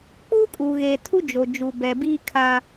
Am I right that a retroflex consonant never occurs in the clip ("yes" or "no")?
yes